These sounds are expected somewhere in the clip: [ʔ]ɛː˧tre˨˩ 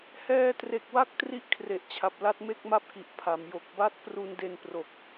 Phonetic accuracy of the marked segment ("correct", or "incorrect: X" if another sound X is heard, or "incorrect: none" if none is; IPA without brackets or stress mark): incorrect: h